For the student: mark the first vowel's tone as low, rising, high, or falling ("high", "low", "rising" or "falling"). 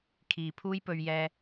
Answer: low